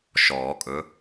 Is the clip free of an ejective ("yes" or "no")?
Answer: no